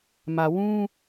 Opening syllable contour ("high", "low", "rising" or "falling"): low